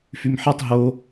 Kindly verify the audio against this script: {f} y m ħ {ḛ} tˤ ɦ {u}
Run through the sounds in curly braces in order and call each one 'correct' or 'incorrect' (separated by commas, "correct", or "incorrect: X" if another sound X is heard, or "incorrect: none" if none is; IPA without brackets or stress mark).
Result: correct, incorrect: e, incorrect: o